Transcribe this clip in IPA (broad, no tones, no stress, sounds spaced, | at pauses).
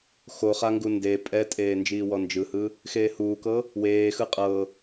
x o χ a ŋ ɡ u n d e pʼ ɛ tʼ eː n d͡ʒ iː w ɔ n d͡ʒ ɯ h ɯ | x eː h uː k ɤ | w eː x ɯ qʼ ɤ